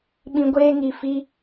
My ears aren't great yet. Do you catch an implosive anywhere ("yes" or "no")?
yes